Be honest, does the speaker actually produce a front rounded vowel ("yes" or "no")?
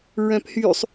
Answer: yes